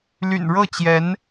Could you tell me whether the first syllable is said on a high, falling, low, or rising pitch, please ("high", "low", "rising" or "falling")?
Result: low